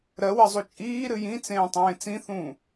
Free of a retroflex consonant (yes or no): yes